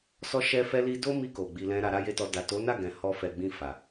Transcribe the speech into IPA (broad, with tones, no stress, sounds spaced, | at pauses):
s ɔ˦ ʃ ɛ˦ f ɛ˦ l i˦ d o˦ m i˧ k o˨ ɡ͡b i˧ l ɛ̃˦ ɾ a˧ ɾ a˦ j e˦ t ɔ˧ d a˨ t o˨˦ n a˦˨ ɡ ɛ̃˨ h ɔ˧ f ɛ˨ ɡ͡b ĩ˧ f a˨